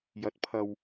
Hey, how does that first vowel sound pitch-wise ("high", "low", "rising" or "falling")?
rising